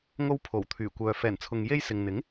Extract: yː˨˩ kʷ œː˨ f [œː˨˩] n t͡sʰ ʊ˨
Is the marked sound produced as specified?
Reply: no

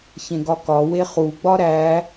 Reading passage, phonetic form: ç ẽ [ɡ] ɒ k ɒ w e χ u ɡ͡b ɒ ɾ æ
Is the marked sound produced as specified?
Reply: yes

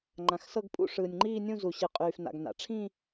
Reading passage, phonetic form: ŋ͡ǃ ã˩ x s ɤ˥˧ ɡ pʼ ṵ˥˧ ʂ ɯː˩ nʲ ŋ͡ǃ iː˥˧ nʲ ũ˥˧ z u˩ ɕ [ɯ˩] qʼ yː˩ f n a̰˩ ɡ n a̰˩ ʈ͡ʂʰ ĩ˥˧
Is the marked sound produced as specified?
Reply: yes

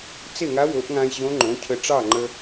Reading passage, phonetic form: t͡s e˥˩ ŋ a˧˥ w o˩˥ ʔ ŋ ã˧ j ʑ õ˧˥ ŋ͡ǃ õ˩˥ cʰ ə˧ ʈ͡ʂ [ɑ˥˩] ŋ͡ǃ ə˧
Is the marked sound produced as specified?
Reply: yes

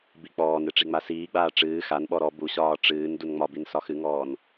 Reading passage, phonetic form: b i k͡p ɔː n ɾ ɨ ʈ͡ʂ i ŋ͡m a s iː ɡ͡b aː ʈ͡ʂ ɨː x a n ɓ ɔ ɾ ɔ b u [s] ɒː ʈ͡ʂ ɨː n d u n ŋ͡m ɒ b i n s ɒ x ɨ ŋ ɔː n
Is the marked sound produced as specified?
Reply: no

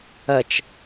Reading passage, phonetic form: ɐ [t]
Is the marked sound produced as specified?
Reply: no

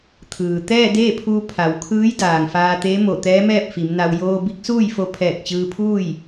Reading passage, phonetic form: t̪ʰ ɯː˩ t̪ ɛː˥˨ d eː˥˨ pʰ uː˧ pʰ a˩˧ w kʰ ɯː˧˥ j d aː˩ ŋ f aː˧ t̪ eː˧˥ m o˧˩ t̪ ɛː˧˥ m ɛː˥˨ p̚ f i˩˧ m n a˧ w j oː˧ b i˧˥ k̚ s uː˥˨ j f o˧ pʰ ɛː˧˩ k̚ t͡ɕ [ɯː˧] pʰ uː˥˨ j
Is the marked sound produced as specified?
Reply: yes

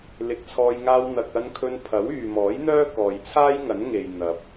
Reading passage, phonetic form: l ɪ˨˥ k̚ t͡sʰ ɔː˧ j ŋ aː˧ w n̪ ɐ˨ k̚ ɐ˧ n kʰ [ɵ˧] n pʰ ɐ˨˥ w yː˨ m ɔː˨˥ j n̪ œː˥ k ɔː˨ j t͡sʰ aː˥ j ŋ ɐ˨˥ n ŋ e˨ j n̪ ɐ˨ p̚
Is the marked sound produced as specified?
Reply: yes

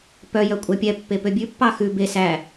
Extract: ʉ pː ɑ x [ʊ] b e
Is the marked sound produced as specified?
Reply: no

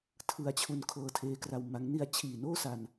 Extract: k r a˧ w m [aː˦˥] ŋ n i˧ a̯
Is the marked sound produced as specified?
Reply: no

